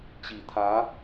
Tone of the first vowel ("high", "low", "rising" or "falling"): low